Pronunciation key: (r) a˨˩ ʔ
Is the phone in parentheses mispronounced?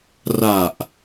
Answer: no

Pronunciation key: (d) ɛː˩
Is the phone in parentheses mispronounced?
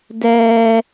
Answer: no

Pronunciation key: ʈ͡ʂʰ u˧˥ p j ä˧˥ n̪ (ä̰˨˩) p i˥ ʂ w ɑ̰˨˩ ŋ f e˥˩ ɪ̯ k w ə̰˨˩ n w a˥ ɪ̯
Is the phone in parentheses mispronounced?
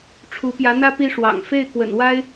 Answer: yes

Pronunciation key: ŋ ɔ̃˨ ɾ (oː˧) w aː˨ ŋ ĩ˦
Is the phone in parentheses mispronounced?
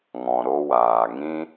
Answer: yes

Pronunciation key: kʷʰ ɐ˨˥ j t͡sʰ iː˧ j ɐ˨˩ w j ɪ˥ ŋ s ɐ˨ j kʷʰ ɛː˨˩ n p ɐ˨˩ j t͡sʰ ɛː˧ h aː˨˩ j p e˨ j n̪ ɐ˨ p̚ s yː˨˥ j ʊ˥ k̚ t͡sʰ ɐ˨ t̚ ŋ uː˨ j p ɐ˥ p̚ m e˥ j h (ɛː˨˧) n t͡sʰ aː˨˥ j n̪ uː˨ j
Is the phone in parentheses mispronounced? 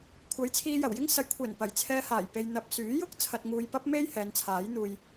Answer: no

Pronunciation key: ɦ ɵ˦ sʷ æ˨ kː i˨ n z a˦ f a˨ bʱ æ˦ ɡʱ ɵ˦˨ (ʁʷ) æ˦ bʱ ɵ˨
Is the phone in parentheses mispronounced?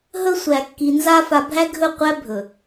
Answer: yes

